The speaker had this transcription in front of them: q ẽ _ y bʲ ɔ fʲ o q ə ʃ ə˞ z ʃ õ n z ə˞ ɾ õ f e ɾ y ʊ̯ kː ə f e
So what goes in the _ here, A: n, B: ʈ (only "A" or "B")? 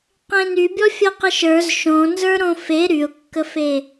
A